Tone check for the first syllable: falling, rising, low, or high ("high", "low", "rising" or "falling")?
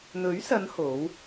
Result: rising